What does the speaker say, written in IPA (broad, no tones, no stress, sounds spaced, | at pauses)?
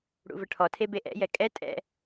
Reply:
ɽ ṵ v ə ʈʰ ɔ tʰ e b e ʔ ɛ̰ j ɛ kʼ ɛ tʼ ɛ̰